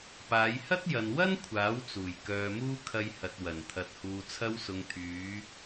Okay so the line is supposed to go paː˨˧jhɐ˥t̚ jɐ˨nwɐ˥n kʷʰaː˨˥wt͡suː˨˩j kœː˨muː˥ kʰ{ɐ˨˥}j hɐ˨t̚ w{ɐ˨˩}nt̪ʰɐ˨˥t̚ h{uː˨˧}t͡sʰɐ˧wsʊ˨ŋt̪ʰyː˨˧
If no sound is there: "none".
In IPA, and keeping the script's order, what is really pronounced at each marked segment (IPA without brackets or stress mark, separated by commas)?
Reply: ɐ˧, ɐ˨˩, uː˨